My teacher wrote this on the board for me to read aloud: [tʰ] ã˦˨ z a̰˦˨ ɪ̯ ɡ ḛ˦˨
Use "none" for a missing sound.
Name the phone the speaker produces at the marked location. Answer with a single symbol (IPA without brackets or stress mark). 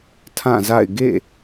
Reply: tʰ